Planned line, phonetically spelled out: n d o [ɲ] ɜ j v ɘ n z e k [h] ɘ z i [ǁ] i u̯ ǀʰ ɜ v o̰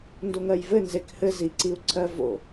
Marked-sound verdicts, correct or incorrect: incorrect, correct, incorrect

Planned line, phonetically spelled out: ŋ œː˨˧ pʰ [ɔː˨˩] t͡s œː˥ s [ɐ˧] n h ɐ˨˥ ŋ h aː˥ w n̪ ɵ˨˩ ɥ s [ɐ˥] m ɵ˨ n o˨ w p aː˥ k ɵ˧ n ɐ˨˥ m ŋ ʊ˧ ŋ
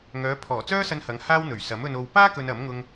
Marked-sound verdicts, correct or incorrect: correct, correct, incorrect

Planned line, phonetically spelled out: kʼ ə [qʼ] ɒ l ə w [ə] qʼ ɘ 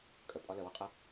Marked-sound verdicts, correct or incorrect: incorrect, correct

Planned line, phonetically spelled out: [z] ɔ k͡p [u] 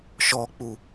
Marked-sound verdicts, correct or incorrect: incorrect, correct

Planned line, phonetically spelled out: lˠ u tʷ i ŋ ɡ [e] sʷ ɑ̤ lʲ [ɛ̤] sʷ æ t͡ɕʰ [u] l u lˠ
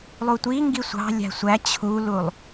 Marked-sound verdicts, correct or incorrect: incorrect, incorrect, correct

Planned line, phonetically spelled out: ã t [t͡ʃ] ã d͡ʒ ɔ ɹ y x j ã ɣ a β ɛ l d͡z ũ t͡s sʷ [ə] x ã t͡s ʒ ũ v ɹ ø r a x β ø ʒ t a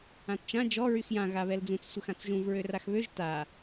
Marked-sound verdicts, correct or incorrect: correct, correct

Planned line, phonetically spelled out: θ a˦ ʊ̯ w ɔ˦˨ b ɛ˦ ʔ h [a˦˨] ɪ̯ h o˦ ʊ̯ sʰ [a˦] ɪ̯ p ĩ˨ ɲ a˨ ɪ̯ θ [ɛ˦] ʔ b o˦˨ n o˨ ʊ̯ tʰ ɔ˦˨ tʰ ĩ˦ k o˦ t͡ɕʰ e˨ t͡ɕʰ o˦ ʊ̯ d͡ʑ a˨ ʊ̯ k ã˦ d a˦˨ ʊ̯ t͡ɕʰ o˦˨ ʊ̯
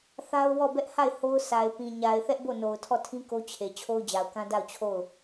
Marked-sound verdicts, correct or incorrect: correct, incorrect, correct

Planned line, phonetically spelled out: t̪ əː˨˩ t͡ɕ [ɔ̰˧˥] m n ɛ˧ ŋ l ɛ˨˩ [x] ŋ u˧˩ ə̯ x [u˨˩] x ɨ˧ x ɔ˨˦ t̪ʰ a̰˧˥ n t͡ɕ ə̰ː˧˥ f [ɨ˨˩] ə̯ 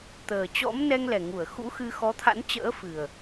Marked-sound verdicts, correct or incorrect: correct, incorrect, incorrect, correct

